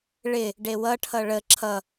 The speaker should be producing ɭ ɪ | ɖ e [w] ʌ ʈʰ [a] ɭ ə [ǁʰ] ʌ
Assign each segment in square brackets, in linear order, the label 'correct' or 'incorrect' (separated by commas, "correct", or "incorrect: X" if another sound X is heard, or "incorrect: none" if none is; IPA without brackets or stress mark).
correct, incorrect: ʌ, correct